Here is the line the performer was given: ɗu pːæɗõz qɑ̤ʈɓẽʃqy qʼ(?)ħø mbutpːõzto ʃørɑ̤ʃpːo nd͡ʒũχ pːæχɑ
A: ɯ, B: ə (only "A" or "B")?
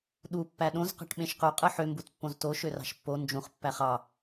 A